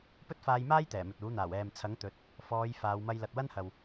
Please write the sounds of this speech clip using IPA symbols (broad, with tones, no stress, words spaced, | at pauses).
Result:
pɵ˥t̚faː˧jmaː˥j t̪ɛː˨˩mɵ˨t̚uː˨˥n̪aː˨˩w ɛː˨mt͡sʰɐ˨˥ŋ t̪ɵ˨˥t̚ | fɔː˨˧j faː˨˧wmɐ˧j lɐ˨t̚wɐ˥n hɐ˨w